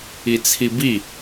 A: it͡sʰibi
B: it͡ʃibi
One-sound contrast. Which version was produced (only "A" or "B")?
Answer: A